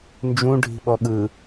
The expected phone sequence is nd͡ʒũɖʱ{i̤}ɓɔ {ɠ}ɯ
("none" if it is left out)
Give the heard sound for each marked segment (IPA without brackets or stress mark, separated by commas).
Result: i̤, ɠ